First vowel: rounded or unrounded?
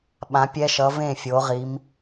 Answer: unrounded